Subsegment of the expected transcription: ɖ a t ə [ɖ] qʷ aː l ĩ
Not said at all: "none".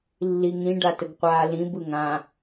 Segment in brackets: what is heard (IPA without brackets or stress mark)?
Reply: ɡ